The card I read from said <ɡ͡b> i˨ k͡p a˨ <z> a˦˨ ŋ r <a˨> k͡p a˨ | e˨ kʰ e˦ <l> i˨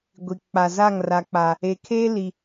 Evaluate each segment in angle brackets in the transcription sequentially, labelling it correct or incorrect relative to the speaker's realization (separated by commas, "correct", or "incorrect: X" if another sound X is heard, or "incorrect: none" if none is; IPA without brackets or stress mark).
incorrect: ɡʷ, correct, correct, correct